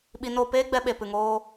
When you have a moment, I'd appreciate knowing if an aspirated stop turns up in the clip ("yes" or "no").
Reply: no